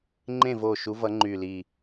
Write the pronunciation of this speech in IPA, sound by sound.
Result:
ŋ͡ǃ ẽ˥˨ v o˧˩ ʃ u˨˦ v ʌ˨˦ ŋ͡ǃ y˧˩ l i˧˩

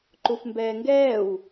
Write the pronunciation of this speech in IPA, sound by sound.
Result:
ǃ u f m b ɛː ŋ ɡ ɛː w

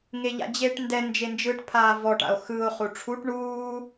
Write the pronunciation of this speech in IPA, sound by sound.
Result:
ŋ e ʎ a̰ d͡ʑ e ʈ n d ɛ n d͡ʒ e n d͡ʒ ɯ ʈ pʰ aː v ɔ ʈ a̰ o̯ x ɯ o̯ χ u ʈ͡ʂʰ u ʈ ɳ uː

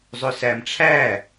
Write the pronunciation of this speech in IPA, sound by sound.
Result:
zˤ ʊ s æ m ʈ͡ʂʰ æ

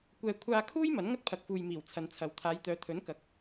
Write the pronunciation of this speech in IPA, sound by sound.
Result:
kʷ ɛː˧ kʷʰ aː˥ kʰ uː˥ j m ɐ˨˥ n ŋ ɐ˥ t̚ pʰ ɐ˨ k̚ f uː˨ j m iː˨˩ w t͡sʰ ɐ˨˧ n t͡sʰ ɐ˨ w t̪ʰ aː˨˧ j t̪ œː˨˧ t̪ʰ ɵ˨˥ n k ɐ˨˥ k̚

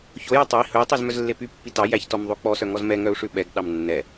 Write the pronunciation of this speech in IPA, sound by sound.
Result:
ç o j ɛ tˤ ɛ i̯ h ɵ i̯ tˤ i z m œ z lː e p y pː i t ɑ j æ ç t ɔ m ðˤ o k͡p ɔ s œ ŋ ɔ z m ɛ ŋ œ u̯ ʂ ʉ ɓ ɛ ɡ ɗ ɑ m nː ɛ

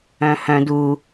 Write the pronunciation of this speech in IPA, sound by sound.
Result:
œ̃ h œ̃ d u

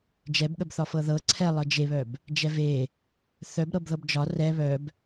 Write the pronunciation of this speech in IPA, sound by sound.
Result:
d͡ʒ ɛ b ɠ ə b θ ɒ f ɤ ð ɤ ǀʰ ɛ lˠ ɤ d͡ʒ e β œ b | d͡ʒ ɛ v e | θ œ b ɾ ɤ b ð ɤ b d͡ʒ ɒ r ɛ β œ b

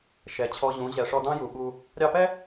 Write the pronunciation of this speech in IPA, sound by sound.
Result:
ʃ ɛ˨ t͡ɕʰ ɔ˧ ʑ ũ˨˦ ʑ ɛ˨ ʂ ɔ˧ d ɑ̃˦ j u˨ ɓ u˧ | ɾʲ ɑ˧ p ɛ˦

